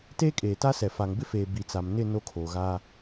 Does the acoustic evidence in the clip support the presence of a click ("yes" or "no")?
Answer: no